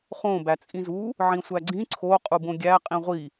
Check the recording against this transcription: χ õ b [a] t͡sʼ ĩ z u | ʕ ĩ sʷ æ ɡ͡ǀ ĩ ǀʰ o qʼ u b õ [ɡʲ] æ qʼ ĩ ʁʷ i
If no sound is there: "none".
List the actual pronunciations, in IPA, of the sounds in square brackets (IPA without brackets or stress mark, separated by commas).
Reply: æ, ɡʲ